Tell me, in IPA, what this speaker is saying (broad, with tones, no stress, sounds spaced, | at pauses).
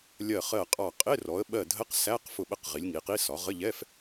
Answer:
lʲ ɜ˧˩ χ ɜ˧˩ qʼ ɑ˧˩ qʼ ɪ˧˥˧ r ɔ˩˧ ə̯ ɓ ɜ˧˩ dʱ ə˧˥˧ q s æ˧˥˧ q f ʊ˧˩ ɓ ə˧˩ q ʁ i˩˧ lʲ ŋ i˩˧ q i˧˥˧ s ɒ˩˧ ʁ ə˧˥˧ ʎ ɛ˧˥˧ f